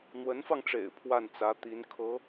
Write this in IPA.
n̪ w ə˧˥ n f ɑ˧ ŋ ʈ͡ʂ ḛ˨˩ ɪ̯ pʰ w a˥˩ n t͡s ä˧˥ t̪ i˧˥ n kʰ ɤ˧˥

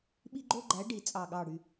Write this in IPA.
ɓ i˥ ɡ͡ǃ o˥ ɡ͡ǃ æ˧˥ ɖ i˨˩ t͡sʼ ɑ˨˩ ɠ ɑ˨˩ ɽ y˨˩

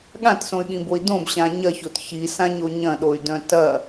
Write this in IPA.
ɠ ã t s õ y̯ ɠ ĩ b o i̯ d õ b ɕ ã ɲ ɐ ç o t ç i s ã ɲ o ɲ ɐ̃ ɗ o y̯ d œ̃ t ɐ

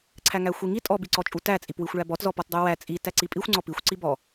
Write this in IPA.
ǀʰ æ ŋ æ xʷ i ŋ i tʼ ɔ b i ǀ ɔ t͡ʃʼ u t æ t͡sʼ i p w i xʷ ɭ æ b ɔ t z ɔ p ɔ t dˤ u w æ t͡sʼ i t æ ǀ i pʼ i xʷ ŋ͡ǀ ɔ p i xʷ ǀ i b ɔ

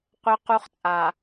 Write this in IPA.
qʷ œ˦ q u˦ χ t͡sʼ a˨

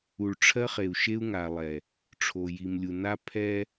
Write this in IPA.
u˨ ɭ ʈ͡ʂʰ ɜ˦ χ e˨ u̯ ʃ e˦ u̯ ŋ a˨ lˠ ɛ˨ | ʈ͡ʂʰ o˨ j i˨ m lʲ u˨ n a˦ pʰ ɛ˦

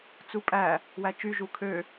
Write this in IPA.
t͡s u pʼ æ | w æ t͡ʃ y ʒ u kʰ ø

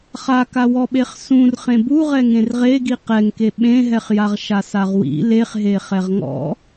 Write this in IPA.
χ a k a w ɔ ɓ e χ s ũ r χ ẽ b u ʁ ɛ ŋ ẽ r ʁ e ɡ i q ɛ ŋ k e ɓ ẽ ɦ ɛ χ j a ʁ ʃ a s a ʁ w ḭ l e χ ɦ e χ ɛ ʁ ŋ ɔ̰

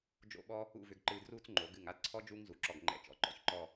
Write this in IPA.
d͡ʒ o̰˥˧ ɓ ɔː˥ | ṵ˥˧ v ʏ˧ ɡ ǃ ɨː˧ d r uː˥ t͡s ŋ͡ǃ o˩˧ ɡ ɨ˧˩ ŋ a˥ d ǀʰ ɔ˥ d͡ʒ uː˥ ŋ z u˩˧ ǁ ɔ˧˩ ɡ ŋ͡ǃ ɛ̰˧˩ t͡ʃ ɔ̰˩˧ ǃ ɔ̰˥˧ ç ǃ ɔː˥˧

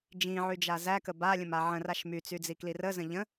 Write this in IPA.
d͡ʒ ĩ ʕ y d͡ʒ a z æ k ə b a lʲ ə̃ m a ʕ ə̃ r a ʃ m y t͡s y d͡z i k l i r ə z ə̃ ʎ ə̃

